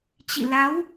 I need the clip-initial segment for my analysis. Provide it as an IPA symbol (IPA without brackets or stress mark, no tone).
t͡ɕ